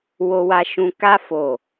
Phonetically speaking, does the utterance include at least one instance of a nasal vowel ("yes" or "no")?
yes